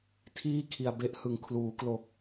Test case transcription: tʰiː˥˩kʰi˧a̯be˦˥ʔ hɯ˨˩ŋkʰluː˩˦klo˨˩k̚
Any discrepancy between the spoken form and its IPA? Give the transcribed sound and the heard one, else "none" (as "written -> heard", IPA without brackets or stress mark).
none